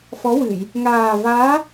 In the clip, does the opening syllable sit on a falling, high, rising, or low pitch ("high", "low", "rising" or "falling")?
rising